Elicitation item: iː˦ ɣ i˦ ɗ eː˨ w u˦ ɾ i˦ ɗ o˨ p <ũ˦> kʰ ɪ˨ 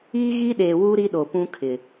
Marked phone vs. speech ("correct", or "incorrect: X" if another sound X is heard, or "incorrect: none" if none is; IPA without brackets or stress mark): correct